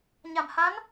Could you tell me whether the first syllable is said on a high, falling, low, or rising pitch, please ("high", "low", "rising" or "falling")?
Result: low